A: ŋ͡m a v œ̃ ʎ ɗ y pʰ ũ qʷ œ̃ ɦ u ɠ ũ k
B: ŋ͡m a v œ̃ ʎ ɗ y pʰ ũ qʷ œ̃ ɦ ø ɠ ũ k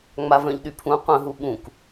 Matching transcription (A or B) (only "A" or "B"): A